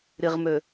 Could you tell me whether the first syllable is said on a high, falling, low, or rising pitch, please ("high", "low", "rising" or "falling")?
low